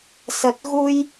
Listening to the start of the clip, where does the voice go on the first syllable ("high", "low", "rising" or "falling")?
low